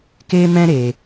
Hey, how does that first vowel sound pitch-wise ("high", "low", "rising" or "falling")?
high